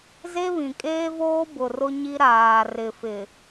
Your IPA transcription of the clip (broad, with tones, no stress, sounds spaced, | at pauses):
z e˦ β ĩ˨ kʼ eː˦ v oː˦ b ʊ˨ r ʊ˦ ɲ i˦ ɾ aː˨ r ɪ˨ f ɪ˨